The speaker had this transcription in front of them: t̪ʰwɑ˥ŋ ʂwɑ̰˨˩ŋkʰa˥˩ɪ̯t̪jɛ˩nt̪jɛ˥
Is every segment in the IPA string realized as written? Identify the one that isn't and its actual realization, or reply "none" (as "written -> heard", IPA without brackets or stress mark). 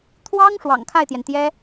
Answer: none